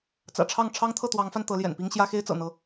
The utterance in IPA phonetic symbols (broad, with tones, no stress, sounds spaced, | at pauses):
t͡s ä̰˨˩ ʈ͡ʂʰ ɑ˥˨ ŋ ʈ͡ʂʰ ɑ˦ ŋ t̪ʰ ɤ˥˨ t̪ w ɑ˨˦ ŋ f a˧ n t̪ ɤ˨˦ l j ɛ̰˨˩ n p i˦ ŋ ɕ j ä˦ x e˦ ɪ̯ t͡s ɤ̰˨˩ n̪ ɤ˨˦